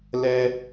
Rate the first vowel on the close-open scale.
mid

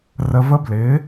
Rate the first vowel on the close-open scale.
mid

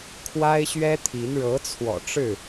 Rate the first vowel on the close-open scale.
open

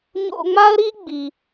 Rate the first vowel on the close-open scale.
mid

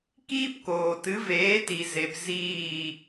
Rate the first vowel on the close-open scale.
close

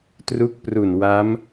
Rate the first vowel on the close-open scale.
close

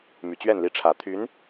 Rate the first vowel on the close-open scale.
close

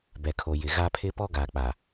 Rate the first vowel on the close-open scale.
mid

